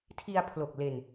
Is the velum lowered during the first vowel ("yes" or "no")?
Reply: no